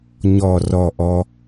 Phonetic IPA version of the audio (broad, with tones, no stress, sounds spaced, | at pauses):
ɲ ɔ˥˧ r ɔ˥˧ ʔ ɔ˥